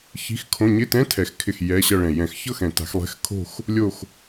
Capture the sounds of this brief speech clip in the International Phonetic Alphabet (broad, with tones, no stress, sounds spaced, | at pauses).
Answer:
ç i̤˧˥˧ x kʰ õ˧˥˧ ɲ ɪ˧˥˧ t ɛ̃˧˥˧ tʰ ɛ˨˩˦ x kʰ ɪ˧˩ x j ɛ˧˥˧ ɕ ʌ˥˧ ɭ ɛ̃˧˩ j ɛ̃˨˩˦ x ç ɤ˥˧ x ɛ̃˨˩˦ t a̤˨˩˦ x lˠ ɛ̤˧˥˧ x kʰ o̤˥˧ x | lʲ o˥˧ x